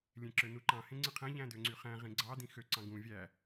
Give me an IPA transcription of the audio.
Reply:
lʲ ẽ ǁ ø n u ǃ ɑ̃ h ẽ ŋ͡ǀ ɯ qʰ æ̃ ʎ æ̃ d ø ŋ͡ǀ y χ æ̃ ʁ ĩ ɡ͡ǀ ɑ d ĩ x ø ǀ ɑ̃ ɡ ũ vʲ æ

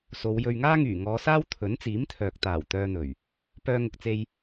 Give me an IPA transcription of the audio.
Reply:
s o˨˧ w j ɵ˧ ɥ ŋ aː˥ ŋ yː˨˩ ŋ ɔː˨˧ s aː˥ w t̪ʰ ɵ˨˥ n t͡s iː˨˥ m t̪ʰ œː˨ k̚ t̪ aː˨˩ w t̪ œː˧ n̪ ɵ˨˩ ɥ | p œː˧ ŋ ʊ˨ k̚ t͡s e˧ j

